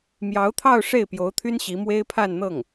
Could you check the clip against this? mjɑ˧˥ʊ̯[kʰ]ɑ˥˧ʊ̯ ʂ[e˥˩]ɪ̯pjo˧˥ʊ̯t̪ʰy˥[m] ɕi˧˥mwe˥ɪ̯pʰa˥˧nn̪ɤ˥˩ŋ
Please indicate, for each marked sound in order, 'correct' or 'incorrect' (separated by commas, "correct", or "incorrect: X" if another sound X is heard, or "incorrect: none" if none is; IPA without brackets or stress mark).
incorrect: t̪ʰ, correct, incorrect: n